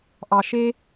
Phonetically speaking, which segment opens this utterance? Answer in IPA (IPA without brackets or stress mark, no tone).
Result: ʔ